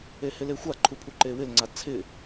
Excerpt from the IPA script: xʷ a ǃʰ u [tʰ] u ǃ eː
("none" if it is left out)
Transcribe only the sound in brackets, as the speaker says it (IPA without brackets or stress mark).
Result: pʰ